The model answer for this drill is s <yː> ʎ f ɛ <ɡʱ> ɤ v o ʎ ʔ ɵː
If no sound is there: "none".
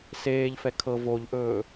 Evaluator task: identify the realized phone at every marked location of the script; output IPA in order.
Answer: eː, kʰ

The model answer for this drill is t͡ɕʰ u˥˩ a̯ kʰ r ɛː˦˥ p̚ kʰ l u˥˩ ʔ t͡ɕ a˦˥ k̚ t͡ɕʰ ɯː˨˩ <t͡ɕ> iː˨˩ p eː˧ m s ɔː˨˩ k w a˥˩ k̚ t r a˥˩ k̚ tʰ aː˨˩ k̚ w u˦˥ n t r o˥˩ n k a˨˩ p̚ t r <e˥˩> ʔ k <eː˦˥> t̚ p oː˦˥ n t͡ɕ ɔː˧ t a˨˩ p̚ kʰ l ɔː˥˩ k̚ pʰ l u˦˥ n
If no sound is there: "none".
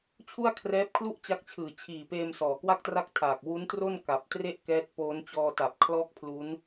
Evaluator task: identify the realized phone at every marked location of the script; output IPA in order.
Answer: t͡ɕʰ, e˥˩, ɛː˦˥

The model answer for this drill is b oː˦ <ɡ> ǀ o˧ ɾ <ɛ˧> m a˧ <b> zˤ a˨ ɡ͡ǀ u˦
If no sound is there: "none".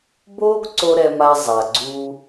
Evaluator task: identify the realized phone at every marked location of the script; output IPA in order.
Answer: ɡ, ɛ˧, none

